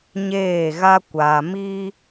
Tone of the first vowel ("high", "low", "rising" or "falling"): falling